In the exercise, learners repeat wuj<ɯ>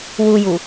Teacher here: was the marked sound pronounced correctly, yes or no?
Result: no